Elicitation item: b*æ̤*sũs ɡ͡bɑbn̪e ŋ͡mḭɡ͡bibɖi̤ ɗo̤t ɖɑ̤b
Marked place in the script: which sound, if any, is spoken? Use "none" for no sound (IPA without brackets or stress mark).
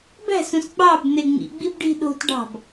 æ̤